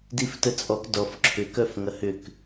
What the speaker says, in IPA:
diftət͡sʼɔk dɔf ǁʰʏkœf ŋɐhʏk

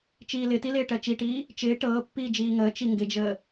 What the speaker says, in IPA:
t͡ʃiːlɪtilɪː ʈɜt͡ʃiʈiː | t͡ʃɪː ʈɤːpːiː d͡ʒiːŋəː t͡ʃiŋɡɪd͡ʒəː

